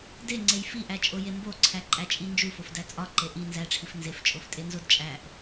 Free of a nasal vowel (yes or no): yes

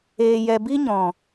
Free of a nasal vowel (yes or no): no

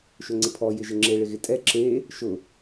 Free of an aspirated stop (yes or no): no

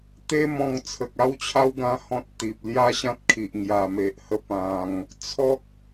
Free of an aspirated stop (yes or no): no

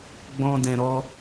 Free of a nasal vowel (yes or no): no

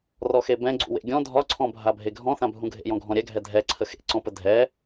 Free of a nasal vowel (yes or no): no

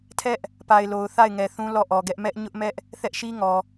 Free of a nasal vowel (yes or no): no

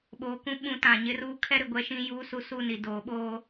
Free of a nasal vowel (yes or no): no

